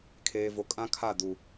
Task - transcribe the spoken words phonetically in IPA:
kʰ eː˨ v o˨ kʼ ã˦ kʰ a˦˨ d u˨

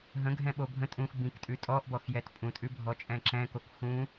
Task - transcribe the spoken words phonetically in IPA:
ɦ ə̃ ɡʱ ɛ̃ ɓ o bʱ ə̃ tʼ ũ x b ĩ k tʼ ʉ tʼ ɔ ʔ b ɔ x j ɛ t pʼ ũ tʼ ʉ bʱ ɔ t͡ʃʼ ɛ̃ ǁ ɛ̃ k o k x ũ

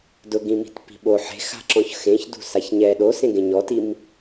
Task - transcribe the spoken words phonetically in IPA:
d ʊ ɡ ĩ m i̤ t p i̤ ɓ o ħ e̤ x a̤ ǁ ɔ̃ ç x ẽ ç d ṳ s a ç ɲ ɛ ɗ o s ẽ ɡ ẽ ɲ ɔ t i m

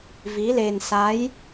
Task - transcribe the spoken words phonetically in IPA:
v i˧˥ l e˧ n s a˧˥ j

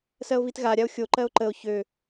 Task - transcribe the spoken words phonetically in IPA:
s ɜ o̯ v i t ɣ a ɾʲ a o̯ xʲ o ǃ ɜ o̯ ǃ ə o̯ ç ø

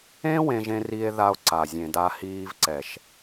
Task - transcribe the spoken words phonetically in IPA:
ẽ˦ w ẽ˧ ʒ ẽ˧ r i˧ e̯ ð a˧ o̯ ǀ a˨ zʲ ẽ˨ d a˧ h iː˧ v ǀ ɛ˨ ʃ

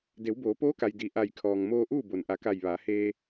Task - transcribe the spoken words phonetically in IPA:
d e˩˧ w b oː˩˧ p oː˧˥ k a˩ j d i˩ ʔ a˧˩ j kʰ ɔː˩ ŋ m oː˧ ʔ uː˥˨ b o˩ n ʔ a˩˧ k a˧˩ j ʋ aː˩˧ h eː˧

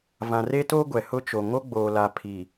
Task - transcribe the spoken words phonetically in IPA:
v ã˨ r e˦ t o˦ ɡʷ ɛ˨ h ʊ˦ t͡ʃ o˨ ŋ o˦ ɡ͡b oː˨ l a˨ pʰ i˨

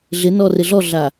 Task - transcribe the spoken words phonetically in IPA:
ɮ ɪ n ɔ r ɪ ɮ ɔ ɮ a

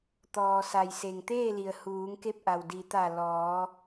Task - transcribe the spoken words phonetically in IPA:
t̪ ɔː˩ s a˩ j s e˩ ŋ t̪ eː˥˨ l i˩ ə̯ h uː˩˧ ŋ k e˧ p̚ ʔ a˩ w d i˩˧ t̪ a˧˩ l ɔː˩˧

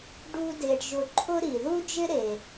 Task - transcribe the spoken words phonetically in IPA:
ɖ u˥ d e˧ ɖ ʒ ʊ˧ ǃʰ ʊ˥ ɾ i˩ ð u˥ d͡ʒ ɪ˥ ɾ e˩

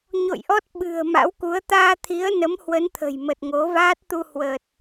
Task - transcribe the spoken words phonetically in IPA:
ɲ o̰˧˨ j ʔ ɔ˦˥ t̚ ɓ ɨ̤˨˩ ə̯ m a̰˧˥ w k u˨˦ ə̯ t̪ aː˧ t̪ʰ i˨˦ ə̯ n ə˨˦ m h w ə˨˦ n t̪ʰ ə̤˨˩ j m ə˨˩ t̚ ŋ o˨˦ v aː˦˥ t̚ t̪ u˧ h w ə˨˩ t̚

